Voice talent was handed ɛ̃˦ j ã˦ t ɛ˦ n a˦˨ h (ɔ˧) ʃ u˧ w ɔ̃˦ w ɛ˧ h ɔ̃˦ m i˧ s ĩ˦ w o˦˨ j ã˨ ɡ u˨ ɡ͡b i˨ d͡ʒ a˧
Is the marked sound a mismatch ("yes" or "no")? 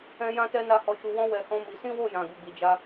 no